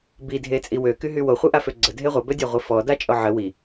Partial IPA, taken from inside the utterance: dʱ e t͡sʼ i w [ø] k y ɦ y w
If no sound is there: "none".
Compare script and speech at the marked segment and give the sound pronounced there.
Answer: ø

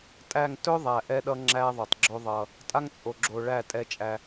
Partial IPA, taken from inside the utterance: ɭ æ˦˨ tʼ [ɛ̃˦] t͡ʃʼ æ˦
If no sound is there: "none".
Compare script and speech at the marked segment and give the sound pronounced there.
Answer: ɛ˦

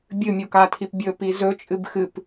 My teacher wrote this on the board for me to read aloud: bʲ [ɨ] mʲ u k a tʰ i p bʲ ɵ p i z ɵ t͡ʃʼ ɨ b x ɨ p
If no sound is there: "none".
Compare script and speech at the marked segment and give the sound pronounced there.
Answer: ɨ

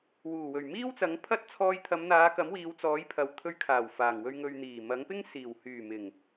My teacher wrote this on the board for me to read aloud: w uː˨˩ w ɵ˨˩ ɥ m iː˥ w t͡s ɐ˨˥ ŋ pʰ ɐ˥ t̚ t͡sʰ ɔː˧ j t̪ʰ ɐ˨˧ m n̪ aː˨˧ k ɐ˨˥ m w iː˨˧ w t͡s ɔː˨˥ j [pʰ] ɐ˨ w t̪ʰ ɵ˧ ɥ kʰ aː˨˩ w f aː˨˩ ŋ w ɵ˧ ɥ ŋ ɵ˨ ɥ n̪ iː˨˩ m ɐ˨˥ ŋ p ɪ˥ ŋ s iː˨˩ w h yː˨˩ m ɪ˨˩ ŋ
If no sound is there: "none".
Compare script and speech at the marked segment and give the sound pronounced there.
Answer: pʰ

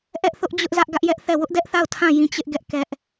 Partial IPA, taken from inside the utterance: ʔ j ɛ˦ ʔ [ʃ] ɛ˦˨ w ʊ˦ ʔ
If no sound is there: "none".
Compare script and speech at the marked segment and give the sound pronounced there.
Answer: θ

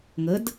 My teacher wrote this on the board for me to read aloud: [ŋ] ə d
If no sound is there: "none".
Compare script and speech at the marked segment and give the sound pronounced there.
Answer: ŋ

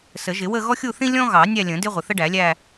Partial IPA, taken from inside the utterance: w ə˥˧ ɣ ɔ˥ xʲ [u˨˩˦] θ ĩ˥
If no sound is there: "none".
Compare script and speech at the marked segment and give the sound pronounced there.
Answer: u˥˧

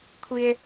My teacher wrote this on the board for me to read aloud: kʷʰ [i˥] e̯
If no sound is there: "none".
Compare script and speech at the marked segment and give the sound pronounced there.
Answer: i˥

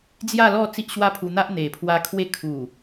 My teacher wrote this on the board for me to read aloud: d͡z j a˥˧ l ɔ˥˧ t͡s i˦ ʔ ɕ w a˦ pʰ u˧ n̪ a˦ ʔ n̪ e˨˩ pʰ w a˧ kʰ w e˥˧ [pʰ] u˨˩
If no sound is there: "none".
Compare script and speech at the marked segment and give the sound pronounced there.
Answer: kʰ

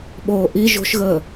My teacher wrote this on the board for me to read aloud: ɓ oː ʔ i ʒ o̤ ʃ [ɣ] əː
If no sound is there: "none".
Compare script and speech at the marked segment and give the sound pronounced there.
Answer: ɣ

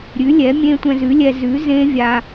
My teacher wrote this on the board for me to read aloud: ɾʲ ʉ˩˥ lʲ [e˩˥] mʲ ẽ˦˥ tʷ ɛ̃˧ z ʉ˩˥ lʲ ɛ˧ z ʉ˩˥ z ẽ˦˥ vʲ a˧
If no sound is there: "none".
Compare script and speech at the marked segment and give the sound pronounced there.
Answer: ɛ˩˥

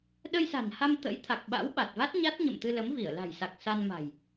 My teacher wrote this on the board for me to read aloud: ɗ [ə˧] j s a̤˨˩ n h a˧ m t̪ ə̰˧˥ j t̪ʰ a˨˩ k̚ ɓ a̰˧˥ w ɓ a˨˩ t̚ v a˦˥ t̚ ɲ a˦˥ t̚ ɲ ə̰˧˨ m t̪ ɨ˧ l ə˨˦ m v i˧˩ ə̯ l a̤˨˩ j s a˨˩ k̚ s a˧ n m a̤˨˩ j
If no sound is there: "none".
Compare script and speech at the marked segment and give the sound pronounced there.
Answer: ə˧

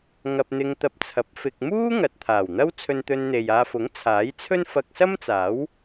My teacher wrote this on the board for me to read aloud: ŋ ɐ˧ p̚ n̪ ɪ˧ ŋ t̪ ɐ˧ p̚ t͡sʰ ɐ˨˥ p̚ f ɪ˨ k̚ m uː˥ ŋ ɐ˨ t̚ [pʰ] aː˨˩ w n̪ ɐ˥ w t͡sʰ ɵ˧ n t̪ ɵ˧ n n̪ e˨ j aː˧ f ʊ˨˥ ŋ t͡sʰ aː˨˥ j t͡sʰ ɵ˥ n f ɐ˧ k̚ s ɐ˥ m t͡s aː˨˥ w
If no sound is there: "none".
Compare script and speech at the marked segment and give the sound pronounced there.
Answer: t̪ʰ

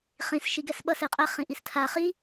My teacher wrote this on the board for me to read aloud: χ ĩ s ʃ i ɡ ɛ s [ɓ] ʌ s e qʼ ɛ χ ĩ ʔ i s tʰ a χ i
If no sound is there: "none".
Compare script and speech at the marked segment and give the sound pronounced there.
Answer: ɓ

